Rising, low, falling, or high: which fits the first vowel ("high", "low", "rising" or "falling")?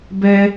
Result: high